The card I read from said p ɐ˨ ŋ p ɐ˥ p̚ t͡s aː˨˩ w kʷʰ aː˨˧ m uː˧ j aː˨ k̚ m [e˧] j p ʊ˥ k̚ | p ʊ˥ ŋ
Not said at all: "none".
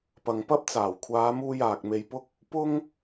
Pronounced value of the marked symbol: e˧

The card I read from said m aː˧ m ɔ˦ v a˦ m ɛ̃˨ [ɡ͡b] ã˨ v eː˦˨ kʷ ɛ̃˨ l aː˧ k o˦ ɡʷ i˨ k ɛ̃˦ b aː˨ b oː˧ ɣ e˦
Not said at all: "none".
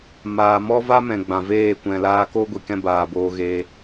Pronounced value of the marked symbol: ɡ͡b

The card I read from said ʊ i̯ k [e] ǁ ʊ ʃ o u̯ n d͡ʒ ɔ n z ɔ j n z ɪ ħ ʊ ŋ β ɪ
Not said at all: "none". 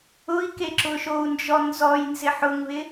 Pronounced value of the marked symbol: e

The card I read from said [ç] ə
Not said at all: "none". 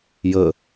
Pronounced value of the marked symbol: j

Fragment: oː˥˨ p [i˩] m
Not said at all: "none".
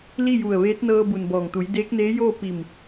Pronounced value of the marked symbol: i˧˩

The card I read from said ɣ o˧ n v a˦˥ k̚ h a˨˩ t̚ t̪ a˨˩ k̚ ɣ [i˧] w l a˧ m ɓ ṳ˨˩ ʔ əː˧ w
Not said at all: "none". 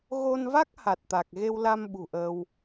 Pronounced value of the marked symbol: e˧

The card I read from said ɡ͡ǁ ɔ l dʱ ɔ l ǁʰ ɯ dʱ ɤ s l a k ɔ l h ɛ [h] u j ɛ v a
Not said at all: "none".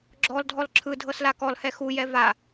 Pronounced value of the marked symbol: x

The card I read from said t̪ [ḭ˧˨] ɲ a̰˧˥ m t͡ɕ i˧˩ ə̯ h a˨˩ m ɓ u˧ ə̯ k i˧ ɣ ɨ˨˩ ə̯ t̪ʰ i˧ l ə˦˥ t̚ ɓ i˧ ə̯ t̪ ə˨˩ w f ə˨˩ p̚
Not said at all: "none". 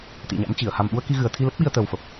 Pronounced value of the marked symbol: ḭ˧˨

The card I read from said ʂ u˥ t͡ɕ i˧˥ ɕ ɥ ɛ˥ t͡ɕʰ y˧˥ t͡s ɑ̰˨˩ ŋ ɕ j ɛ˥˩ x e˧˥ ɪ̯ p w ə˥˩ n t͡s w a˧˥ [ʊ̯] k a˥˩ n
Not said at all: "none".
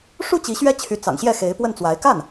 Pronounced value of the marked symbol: ɪ̯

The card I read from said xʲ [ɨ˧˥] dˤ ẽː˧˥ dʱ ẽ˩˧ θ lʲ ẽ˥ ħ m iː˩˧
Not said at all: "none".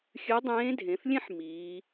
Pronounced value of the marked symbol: ɨ˧˥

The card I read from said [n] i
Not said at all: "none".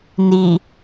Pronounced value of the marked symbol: n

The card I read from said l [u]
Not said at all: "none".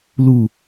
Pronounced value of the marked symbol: u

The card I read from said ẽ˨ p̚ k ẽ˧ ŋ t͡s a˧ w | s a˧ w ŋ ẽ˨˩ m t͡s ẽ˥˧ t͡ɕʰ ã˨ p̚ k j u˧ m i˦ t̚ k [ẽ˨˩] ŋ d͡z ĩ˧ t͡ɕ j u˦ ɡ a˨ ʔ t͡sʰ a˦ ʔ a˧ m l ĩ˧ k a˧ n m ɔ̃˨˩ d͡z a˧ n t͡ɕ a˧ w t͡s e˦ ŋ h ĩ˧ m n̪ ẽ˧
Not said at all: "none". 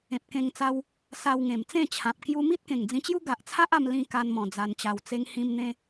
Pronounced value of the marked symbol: ẽ˨˩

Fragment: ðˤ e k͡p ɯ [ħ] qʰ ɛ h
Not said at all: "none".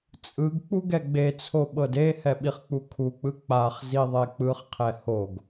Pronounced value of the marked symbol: χ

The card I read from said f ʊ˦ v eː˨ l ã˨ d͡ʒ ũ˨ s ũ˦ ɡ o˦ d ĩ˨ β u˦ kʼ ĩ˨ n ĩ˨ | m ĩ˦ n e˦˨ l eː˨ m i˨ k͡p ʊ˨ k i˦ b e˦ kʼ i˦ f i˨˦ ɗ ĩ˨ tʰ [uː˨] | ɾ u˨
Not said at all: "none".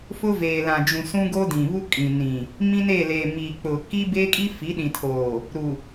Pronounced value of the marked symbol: oː˨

